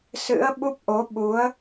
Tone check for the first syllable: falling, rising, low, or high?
rising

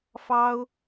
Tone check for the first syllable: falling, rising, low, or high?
high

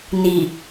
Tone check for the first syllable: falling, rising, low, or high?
low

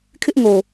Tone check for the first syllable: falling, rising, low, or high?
high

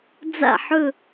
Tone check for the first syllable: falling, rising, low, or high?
falling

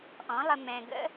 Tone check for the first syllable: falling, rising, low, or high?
rising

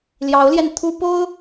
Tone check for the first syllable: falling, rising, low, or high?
rising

